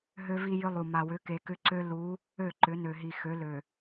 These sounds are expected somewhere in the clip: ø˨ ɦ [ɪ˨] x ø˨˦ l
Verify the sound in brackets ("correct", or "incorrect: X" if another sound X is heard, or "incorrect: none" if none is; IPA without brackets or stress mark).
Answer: incorrect: i˨